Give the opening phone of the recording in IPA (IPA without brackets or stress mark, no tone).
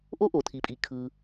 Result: ʔ